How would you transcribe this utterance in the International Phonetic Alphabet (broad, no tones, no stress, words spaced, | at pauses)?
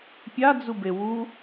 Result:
pʲad͡zube wu